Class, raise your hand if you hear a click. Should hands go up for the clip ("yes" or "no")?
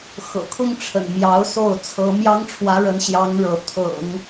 no